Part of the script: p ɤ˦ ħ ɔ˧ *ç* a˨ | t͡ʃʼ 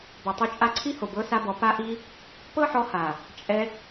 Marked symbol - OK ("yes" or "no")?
no